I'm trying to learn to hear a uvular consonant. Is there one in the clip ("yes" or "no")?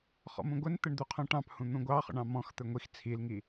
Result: yes